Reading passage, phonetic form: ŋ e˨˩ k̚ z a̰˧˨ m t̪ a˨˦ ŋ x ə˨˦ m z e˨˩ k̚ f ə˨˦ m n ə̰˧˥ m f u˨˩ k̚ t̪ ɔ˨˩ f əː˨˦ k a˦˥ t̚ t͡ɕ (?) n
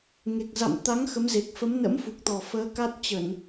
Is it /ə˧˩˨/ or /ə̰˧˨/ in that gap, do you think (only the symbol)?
ə˧˩˨